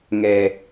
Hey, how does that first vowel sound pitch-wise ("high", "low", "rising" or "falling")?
low